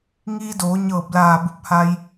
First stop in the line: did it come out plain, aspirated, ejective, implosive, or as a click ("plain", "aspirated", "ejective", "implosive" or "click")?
plain